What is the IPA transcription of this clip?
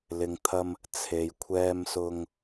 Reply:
l ɪ˨ ŋ t̪ʰ ɐ˧ m | t͡sʰ e˨ j kʷʰ ɛː˧ m s ʊ˧ ŋ

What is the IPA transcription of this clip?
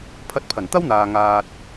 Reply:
pʰ ɐ˧ t̚ pʰ ɐ˨˩ n t̪ ɐ˥ w n̪ aː˨ ŋ aː˨ t̚

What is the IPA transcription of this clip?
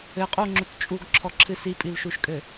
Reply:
ɘ qʼ u ŋ͡ǁ u t t͡ʃʼ u ɡ ǁʰ ɔ ǁʰ ɨ s i pʼ i l ʃ u ʃ kʼ ɘ

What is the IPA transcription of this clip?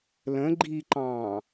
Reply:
l ə̃ ɡ͡ǃ i ǃ ɑ̃ː

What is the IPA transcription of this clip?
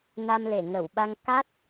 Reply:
n a˧ m l e˧˩ ŋ ə˧˩ w ɓ a˧ ŋ k a˦˥ t̚

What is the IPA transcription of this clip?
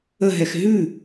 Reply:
ə ɦ ɛ x ɦ ʉ

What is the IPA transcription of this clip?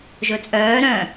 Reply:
ʒ ɵ t͡sʼ œː ɾ œ̃

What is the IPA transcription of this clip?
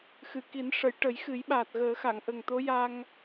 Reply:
x ɨ˨˩˨ k i˨˩˦ n ʂ ə˨˩˦ j ʈ ə˨˩˦ j x ɨ˨˩˦ j ɓ aː˨˩ t̚ ɣ əː˨˩˦ x a˨˩˨ ŋ ʔ ə˨˩ ŋ t̪ o˧˥ j a˧ ŋ

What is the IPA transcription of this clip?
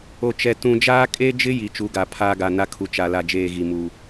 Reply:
o˨ t͡ʃ ɛ˨ t ũ˨ d͡ʒ aː˦ kʼ e˦ d͡ʒ ɪ˦ j i˨ t͡ʃ u˨˦ ɡ a˨ pʰ aː˦ ɡ a˨ n a˦ kʰ u˨ t͡ʃ a˨ l a˨ d͡ʒ eː˦˨ ɣ i˨ m u˨

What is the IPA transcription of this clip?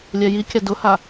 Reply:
lʲ ɛ j i kʲ a d ʊ h a

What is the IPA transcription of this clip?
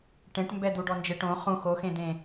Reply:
ʈ ẽ ʈ m b ɛ d̪ u ɖ ɔ n d͡ʒ e ʈ õ χ ũ x o x ẽ d̪ ẽ

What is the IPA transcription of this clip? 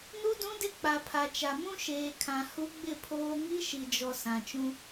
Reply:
n u˦ d ũ˦ d ɪ˦ k͡p a˨ pʰ a˨ t͡ʃ a˨ m ũ˦ ʃ eː˨ kʰ ã˨ h u˦ ɡ͡b ɪ˦˨ pʰ oː˦ ŋ i˦ ʃ i˨ d͡ʒ ɔ˨ s ã˨ t͡ʃ ũ˦

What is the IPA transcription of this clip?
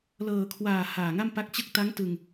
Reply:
l ɤː˨˩ kʰ w aː˨˩ h aː˨˩ ŋ a˥˩ m p a˦˥ k̚ t͡ɕ ɯ˥˩ k̚ t a˦˥ ŋ t ɯ˧ ŋ

